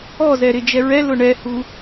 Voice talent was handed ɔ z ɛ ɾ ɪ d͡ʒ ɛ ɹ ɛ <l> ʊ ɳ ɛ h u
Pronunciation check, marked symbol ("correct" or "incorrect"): correct